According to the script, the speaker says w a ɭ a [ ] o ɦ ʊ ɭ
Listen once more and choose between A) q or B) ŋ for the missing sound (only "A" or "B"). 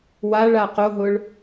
A